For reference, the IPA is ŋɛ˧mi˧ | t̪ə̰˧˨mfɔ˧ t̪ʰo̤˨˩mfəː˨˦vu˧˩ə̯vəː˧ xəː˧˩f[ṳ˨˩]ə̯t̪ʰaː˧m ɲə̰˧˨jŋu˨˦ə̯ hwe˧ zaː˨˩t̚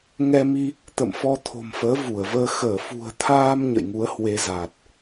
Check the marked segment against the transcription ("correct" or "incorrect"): correct